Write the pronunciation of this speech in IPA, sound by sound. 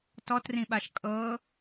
t ɔ t r ĩ ɓ a ʃ kʼ ɤ

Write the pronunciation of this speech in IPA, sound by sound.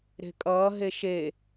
ɾ e̤ kʼ ʌː ɦ e ʃ e

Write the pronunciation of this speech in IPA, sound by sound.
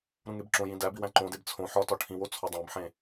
ɾ ũ ŋ e b ǁ õ j ĩ d æ b i w æ̃ ǃ õ d e b t͡sʰ õ ħ ɒ t ɒ ʈʰ ĩ w o t͡sʰ ɒ dˤ æ̃ b ħ ẽ

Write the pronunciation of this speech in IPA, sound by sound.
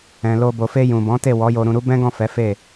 ɛ̃˨ l o˧ b o˨ f e˧ j ũ˨ b ɔ̃˨˦ t e˦˨ w ɔ˨˦ j o˧ ɾ ũ˧ ɾ u˦ b ɛ̃˦ ɡ ɔ̃˦˨ f ɛ˨˦ f e˦˨

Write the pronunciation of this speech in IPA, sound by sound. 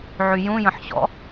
ʕ y j ũ j ə̃ ħ ɕ ɔ̰

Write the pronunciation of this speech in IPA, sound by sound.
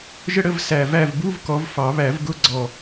ʒ ə˥ ɽ ə˧˥˧ v s æ˨˩ v æ˦˨ v b u˧˥˧ v k ɔ˨˦ v f ɑ˨˩˦ β æ˨˩˦ v ɡ ʊ˧˥˧ ɡ͡ǀ ɔ˨˩

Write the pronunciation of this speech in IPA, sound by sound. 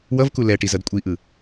w ʌ v k u l ɛ ʈ i z ʌ d kʷʼ i ʔ ɯ

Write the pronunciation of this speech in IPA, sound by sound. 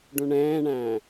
ɖ ũ ɳ ɛ̃ː ɳ æ̃ː

